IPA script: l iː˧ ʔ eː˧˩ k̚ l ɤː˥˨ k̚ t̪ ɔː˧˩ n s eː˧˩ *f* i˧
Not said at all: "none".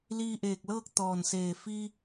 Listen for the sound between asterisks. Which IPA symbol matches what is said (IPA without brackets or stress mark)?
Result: f